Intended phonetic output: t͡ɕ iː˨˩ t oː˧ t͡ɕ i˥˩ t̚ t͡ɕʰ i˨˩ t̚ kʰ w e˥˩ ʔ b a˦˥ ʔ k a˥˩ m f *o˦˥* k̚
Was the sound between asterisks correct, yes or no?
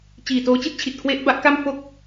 no